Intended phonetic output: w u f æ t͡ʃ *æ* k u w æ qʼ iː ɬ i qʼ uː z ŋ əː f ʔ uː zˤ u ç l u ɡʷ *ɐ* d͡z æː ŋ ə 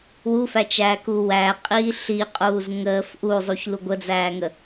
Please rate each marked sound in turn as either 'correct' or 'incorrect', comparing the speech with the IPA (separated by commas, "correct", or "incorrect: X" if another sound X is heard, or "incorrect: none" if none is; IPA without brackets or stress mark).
incorrect: æː, incorrect: ə